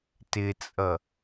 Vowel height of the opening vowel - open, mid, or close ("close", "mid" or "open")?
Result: close